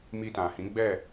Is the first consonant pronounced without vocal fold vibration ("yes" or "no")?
no